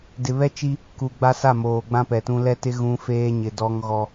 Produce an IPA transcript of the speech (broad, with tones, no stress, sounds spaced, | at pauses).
d ɪ˨ β ɛ˦ t͡ʃ i˦ | k u˨ ɡ͡b a˦ s a˦˨ m oː˨ ɡ͡b ã˦ p ɛ˨ t ũ˦ l ɛ˦ t ɪ˦ ɣ ũ˦ f eː˦ ɲ ɪ˨ d ɔ˦ ŋ ɣ ɔ˦